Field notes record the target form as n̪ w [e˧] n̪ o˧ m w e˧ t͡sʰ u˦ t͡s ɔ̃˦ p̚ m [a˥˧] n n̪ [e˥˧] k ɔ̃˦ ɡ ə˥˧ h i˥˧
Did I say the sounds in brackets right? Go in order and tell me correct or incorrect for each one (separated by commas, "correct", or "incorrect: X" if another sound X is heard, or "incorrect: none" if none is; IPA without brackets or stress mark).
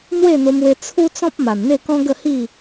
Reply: incorrect: e˥˧, incorrect: a˨˩, correct